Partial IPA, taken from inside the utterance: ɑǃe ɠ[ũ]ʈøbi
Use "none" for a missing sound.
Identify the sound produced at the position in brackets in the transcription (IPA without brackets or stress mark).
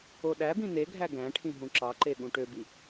ũ